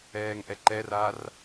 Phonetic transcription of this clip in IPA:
ɛː ŋ ʔ ɛ ǃ ɛ r a r

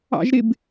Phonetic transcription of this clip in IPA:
ɑ̰ ʒ ɾ ɪ b

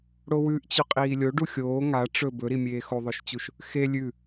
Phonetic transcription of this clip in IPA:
ɽ o w ʉ ʔ t͡ɕ ʉ qʼ iː lʲ o ɖ u xʲ oː ŋ a ʈ͡ʂ ɵ b ɵ ɾ i mʲ eː x o ðˤ ɵ ʃ t͡ɕ u ʃ | x e lʲ ʉ

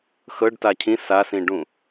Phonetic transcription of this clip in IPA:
x ɤ ɖ t a cʰ ĩ s a s ĩ ɖ ũ

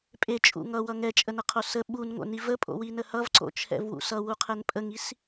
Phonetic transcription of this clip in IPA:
pʼ e t͡ʃʼ ṵ ŋ ʌ w ʌ ŋ ɛ t͡ʃʼ ə n ə qʰ o s ə ɓ u n ŋ o̰ n i v ə pʼ o̰ w i n ə h ʌ v ǀ o̰ t͡ʃʰ ɛ̰ v w ṵ s ʌ w u qʰ ɛ n pʼ ə ŋ i s

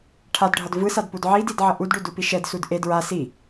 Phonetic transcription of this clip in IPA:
ʈʰ a d ɖʱ ʌ d v ɯ s a d p u d ʕ i d i d ʕ ʌ ʔ u d ɖ u d u p i ʃ ɛ d s u d ʔ e d ɹ a s i

